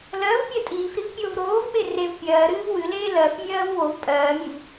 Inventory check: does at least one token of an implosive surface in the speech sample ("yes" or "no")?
yes